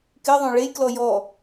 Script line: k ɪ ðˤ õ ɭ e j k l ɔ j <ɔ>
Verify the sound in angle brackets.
correct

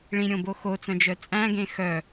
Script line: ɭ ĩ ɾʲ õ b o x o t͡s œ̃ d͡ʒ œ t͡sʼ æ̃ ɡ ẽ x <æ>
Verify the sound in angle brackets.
incorrect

